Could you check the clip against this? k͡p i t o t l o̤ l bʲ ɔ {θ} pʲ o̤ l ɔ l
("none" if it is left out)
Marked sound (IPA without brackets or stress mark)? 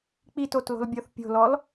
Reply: θ